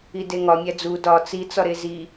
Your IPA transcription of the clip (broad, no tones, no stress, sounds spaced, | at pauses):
i d e ŋ ɒ mʲ æ d͡z u d ɒ t͡s i t͡s ɒ ɾ e z i